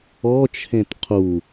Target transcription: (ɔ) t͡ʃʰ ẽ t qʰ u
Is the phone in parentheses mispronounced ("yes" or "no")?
no